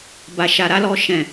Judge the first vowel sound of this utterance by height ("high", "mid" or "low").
low